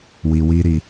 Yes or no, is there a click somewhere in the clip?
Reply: no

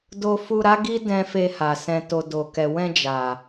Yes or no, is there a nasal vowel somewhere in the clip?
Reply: yes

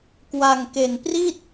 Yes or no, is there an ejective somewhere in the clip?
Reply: no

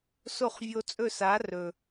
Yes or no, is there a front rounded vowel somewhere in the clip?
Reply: no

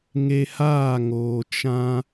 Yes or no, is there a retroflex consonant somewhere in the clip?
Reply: no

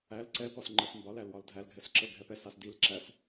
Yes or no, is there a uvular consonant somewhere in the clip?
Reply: no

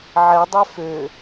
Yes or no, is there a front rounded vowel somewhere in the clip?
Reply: yes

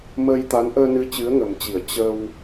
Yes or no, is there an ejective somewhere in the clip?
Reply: no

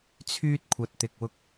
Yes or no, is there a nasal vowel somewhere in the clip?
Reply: no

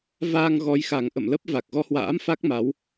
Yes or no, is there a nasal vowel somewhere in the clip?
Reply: no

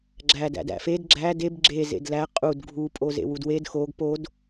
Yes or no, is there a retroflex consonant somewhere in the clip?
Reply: no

